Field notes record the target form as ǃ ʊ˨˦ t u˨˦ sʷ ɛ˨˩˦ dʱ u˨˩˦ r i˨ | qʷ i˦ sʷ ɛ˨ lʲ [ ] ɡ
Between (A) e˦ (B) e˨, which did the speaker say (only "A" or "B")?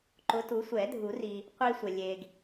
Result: B